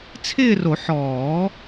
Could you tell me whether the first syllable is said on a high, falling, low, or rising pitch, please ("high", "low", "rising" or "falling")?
falling